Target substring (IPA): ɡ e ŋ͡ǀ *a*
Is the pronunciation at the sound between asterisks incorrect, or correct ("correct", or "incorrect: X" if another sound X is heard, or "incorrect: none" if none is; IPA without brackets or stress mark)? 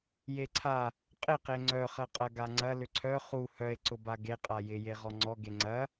incorrect: ɐ